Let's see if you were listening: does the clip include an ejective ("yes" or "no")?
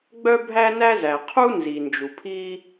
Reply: no